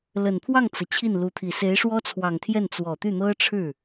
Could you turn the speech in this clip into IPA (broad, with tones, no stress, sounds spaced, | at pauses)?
l ə˨˩ n pʰ w ɑ˥˩ ŋ t͡s ɤ˩ t͡ɕʰ i˥˩ n l u˧˥ t̪ʰ i˨˩ s e˧˥ ɪ̯ ʂ w ɔ˥ t͡sʰ w ɑ˨˩ ŋ t̪ʰ j ɛ˥˩ n t͡s w ɔ˨˩ t̪ y˥˩ n̪ ɤ˥ ʈ͡ʂʰ ɻ̩˥˩